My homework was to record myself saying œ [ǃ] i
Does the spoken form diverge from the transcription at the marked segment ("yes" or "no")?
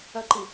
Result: no